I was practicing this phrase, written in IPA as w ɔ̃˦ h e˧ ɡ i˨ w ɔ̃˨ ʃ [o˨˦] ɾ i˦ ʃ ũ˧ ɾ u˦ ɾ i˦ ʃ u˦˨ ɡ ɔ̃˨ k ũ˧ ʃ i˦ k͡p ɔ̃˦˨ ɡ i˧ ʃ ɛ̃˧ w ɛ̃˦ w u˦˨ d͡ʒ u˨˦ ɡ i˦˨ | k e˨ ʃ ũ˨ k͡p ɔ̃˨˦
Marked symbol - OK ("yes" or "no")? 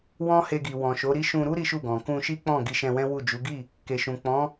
yes